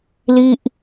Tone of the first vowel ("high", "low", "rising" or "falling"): falling